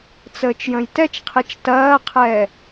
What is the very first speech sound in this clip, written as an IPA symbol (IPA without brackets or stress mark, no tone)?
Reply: t͡s